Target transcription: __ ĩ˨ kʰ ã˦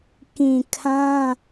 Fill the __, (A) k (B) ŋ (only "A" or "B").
A